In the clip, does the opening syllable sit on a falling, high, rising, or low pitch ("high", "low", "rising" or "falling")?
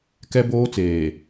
high